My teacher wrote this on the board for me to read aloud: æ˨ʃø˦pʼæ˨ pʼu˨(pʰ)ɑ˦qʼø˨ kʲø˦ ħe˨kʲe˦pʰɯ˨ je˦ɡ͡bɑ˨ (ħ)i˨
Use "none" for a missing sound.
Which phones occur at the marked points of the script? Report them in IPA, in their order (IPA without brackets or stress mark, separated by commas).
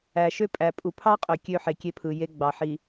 pʰ, ħ